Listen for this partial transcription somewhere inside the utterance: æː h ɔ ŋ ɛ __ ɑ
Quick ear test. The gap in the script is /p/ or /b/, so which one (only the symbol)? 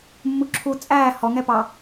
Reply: p